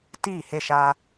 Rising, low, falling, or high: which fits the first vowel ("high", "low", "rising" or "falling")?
falling